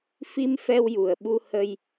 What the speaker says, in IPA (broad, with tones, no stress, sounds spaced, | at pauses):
f i˧ m f ɛ˧ w j u˨˩ ə̯ ɓ u˧ h ə˧ j